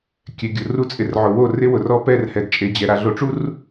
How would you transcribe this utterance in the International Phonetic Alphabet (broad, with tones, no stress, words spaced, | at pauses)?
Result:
kʲɛ˨ɡʲʊ˨ru˦t͡sʼɪ˨r ʕʊ˨wo˦˨ rɪ˦wʊ˨rɔ˦pɛ˦˨r hɛ˨dt͡ʃʼe˨d͡ʑɛ˨ ɾa˨ɮo˨ʈ͡ʂu˦r